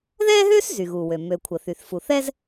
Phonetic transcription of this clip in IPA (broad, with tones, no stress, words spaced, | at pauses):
ðɛː˥ɦøː˥s zy˩ɣu˩ wø˩ mø˩ kʷʰə˩θy˩θ fu˩ θɛ˥z